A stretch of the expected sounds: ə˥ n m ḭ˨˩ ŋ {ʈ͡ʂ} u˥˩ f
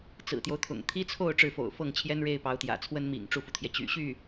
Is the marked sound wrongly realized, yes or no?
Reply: no